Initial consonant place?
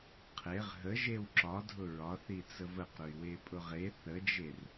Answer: uvular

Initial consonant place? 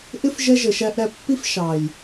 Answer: glottal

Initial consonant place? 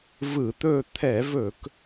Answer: labial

